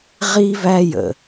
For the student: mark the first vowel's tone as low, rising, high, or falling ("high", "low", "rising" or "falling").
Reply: high